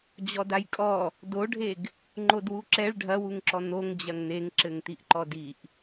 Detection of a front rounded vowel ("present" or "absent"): absent